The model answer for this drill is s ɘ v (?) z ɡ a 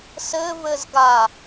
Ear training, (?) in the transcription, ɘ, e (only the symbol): ɘ